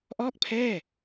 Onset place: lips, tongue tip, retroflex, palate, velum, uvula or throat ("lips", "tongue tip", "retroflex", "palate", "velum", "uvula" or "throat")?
throat